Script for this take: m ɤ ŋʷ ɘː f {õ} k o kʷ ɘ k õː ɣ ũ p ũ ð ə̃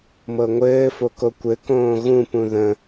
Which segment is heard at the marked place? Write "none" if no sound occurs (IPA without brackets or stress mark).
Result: o